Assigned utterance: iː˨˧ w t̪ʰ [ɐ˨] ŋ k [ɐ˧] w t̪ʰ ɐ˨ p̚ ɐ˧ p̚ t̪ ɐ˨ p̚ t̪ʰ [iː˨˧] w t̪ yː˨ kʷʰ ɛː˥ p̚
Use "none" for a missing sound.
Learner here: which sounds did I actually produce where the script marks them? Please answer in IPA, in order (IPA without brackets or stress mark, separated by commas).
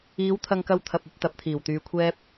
ɐ˧, ɐ˧, iː˨˩